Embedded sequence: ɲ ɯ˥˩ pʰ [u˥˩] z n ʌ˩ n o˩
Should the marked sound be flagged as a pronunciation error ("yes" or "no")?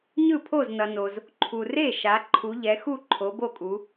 yes